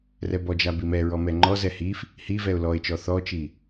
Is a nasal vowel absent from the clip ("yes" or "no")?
yes